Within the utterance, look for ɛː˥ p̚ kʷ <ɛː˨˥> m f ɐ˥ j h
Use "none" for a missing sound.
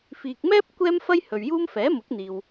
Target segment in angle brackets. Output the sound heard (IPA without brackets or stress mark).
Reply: ɛː˥